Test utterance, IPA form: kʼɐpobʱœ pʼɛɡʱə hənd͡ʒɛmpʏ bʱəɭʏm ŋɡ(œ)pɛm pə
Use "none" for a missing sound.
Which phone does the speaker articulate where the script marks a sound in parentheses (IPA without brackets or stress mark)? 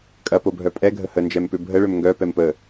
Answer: œ